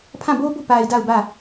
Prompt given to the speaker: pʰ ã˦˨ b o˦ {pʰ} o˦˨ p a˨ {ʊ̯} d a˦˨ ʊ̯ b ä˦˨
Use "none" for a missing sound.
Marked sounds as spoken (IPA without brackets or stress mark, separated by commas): b, ɪ̯